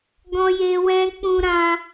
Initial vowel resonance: nasal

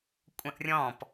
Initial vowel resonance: nasal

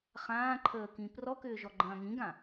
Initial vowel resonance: nasal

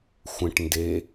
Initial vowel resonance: nasal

